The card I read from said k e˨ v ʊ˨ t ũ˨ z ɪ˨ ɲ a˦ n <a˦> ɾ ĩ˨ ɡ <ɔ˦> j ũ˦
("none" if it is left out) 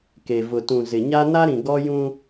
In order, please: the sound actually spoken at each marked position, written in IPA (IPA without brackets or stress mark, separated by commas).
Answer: a˦, ɔ˦